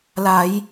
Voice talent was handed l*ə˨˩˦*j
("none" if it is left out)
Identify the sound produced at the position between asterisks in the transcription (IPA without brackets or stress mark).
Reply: a˨˩˦